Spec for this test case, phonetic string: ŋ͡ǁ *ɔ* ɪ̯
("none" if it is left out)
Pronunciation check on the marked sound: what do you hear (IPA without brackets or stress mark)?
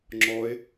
ɔ